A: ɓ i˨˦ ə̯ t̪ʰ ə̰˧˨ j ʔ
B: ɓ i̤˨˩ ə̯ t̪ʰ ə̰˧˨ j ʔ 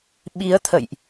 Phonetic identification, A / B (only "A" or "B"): A